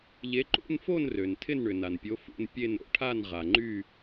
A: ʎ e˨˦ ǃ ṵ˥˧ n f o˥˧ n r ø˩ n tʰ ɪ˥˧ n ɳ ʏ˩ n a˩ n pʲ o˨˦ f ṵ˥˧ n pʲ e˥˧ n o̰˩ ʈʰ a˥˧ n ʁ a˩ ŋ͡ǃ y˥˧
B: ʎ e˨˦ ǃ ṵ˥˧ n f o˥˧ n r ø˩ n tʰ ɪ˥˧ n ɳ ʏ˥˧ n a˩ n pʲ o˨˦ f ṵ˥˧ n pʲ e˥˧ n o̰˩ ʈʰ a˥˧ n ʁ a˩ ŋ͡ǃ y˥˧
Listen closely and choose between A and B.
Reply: A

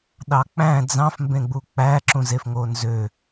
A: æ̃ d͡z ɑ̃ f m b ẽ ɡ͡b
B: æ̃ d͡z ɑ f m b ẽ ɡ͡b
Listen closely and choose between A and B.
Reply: A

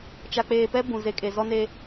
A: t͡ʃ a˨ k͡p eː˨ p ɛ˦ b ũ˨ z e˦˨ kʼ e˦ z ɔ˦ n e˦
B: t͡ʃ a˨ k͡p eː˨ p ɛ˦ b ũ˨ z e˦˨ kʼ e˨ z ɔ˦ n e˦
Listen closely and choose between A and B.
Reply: B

